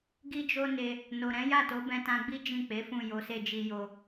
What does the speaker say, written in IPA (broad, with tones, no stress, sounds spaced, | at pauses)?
ɡ i˦ d͡ʒ o˦ n e˧ | n o˨ ɾ ɛ̃˨˦ j a˦˨ t o˨˦ b ɛ̃˧ t ã˧ ɡ͡b i˦ d͡ʒ ĩ˦˨ k͡p e˨˦ f ũ˦˨ j o˨˦ s e˦˨ d͡ʒ i˧ j o˧